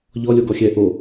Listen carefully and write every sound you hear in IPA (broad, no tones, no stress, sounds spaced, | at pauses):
ʎ ɔ lʲ o ɡ ɔ xʲ ɛ ʔ o